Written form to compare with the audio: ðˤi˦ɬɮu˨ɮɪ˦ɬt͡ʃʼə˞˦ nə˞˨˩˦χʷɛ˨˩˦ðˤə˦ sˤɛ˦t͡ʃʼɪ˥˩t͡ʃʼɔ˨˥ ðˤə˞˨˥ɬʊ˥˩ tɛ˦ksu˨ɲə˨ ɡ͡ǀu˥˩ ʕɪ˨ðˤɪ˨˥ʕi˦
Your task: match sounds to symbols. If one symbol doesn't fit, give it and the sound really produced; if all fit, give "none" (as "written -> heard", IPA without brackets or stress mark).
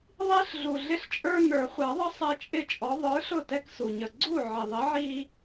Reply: none